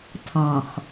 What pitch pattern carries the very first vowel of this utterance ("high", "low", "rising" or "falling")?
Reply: low